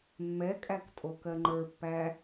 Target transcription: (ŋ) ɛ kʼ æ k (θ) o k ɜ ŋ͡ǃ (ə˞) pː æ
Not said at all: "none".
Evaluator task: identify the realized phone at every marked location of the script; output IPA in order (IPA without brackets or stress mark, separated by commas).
mː, tʼ, ə˞